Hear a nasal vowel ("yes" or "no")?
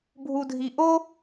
no